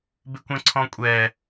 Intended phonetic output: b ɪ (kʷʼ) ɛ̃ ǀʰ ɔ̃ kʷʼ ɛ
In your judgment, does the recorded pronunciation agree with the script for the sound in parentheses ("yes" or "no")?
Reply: no